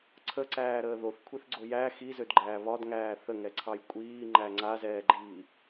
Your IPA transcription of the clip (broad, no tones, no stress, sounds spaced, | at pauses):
ǀʰ ə ǀ æː ɾ əː ð o θ kʷʰ i θ ɡ͡ǀ o j æ x i z ø d ɡ͡ǃ æː β ɒ d ŋ æː θ ə ŋ ɛ ǀʰ ɑ j kʷʼ iː ŋ͡ǃ æ ŋ͡ǀ a z ɛː ɡ͡ǃ iː